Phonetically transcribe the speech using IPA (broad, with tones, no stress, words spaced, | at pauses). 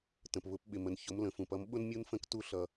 tə̃˩pβʊ˨˥p ɓɪ˩mə˩nçʊ˩˧m lə̃˩fũ˩p ʌ˩˧m ɓʊ˦n mʲu˦nfə̃˦˨k tu˦ɬʌ˩